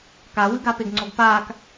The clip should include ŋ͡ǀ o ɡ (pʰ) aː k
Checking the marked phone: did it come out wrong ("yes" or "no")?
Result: yes